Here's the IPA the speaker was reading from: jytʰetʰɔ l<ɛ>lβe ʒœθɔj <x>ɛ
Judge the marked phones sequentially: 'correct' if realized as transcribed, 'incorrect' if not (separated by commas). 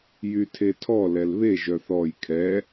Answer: correct, incorrect